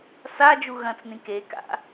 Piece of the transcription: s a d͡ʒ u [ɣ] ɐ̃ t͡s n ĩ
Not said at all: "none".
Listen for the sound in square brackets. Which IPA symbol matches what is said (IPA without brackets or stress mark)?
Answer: ɣ